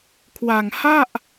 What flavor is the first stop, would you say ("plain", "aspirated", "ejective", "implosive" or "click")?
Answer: aspirated